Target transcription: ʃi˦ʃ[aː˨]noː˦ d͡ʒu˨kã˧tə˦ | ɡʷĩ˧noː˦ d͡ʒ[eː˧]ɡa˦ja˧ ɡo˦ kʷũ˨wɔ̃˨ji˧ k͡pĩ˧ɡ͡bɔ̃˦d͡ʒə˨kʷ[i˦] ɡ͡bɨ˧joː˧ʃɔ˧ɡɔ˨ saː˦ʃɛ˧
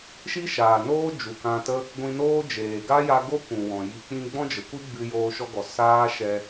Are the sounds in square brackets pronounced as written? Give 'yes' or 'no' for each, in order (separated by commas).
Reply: yes, no, yes